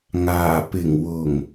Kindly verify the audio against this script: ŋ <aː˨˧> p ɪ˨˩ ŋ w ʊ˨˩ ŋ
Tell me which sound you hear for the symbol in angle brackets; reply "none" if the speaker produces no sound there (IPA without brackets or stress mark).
aː˨˩